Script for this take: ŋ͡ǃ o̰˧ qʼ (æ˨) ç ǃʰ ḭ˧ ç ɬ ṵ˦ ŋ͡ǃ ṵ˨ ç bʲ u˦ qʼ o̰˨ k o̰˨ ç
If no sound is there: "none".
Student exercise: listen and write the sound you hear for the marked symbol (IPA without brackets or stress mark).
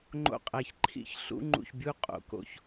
æ˨